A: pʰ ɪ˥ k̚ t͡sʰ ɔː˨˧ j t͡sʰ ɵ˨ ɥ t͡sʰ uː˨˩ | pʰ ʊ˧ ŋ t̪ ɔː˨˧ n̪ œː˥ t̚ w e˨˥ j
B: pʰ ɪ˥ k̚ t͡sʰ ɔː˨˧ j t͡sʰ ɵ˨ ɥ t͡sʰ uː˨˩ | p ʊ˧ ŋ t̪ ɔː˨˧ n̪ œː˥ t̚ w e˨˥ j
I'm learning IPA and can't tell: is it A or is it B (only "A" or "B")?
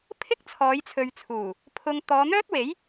A